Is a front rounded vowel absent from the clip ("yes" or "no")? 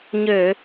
no